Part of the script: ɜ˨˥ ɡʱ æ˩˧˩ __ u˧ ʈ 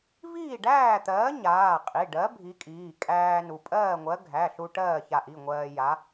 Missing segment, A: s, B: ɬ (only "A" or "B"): B